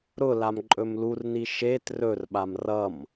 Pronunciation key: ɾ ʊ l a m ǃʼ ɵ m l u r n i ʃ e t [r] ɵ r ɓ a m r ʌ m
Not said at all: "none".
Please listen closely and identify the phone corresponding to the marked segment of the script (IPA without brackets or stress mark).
r